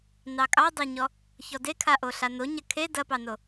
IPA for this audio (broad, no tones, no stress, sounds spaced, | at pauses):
n ɑ kʼ ɑ dˤ e ɲ ɔ | ç ɔ d e kʰ a ʔ o ɬ a n o ɲ ɐ kʰ e d ɐ p ɑ n o